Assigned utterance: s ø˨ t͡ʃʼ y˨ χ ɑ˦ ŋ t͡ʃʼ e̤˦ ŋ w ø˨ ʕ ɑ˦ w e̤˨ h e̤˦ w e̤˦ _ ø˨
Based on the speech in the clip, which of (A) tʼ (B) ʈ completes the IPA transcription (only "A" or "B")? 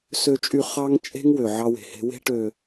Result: B